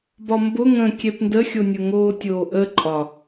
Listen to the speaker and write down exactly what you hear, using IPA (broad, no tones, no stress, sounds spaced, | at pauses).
b ɒ m b ʊ ŋ ə̃ kʲ ɛ p n d ə xʲ o nʲ ʊ ŋ oː tʲ oː ʔ ə ǃʼ ɒ